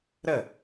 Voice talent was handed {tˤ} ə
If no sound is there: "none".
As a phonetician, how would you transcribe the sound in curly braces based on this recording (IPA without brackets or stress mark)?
ɾ